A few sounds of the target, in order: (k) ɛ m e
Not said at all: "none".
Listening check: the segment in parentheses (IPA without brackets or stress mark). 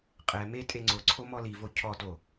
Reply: qʼ